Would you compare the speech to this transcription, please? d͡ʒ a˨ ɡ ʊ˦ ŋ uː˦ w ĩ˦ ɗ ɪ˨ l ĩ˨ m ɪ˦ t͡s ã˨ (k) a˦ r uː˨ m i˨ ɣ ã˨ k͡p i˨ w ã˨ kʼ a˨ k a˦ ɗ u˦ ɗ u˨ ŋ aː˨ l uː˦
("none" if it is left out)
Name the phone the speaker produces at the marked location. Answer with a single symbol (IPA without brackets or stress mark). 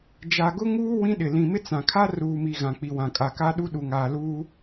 kʰ